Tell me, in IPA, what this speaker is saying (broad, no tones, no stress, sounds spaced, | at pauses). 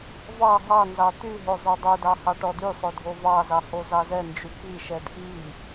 v ɑ ɦ ɑ n z ɑ t̪ y ɦ o zˤ o dˤ o d ɑ h ɑ ʈ ɔ d y sˤ o dʱ o v ɑ z ɑ h o z ɑ z ɛ n d͡ʒ y k i ʃ ɛ d ʔ i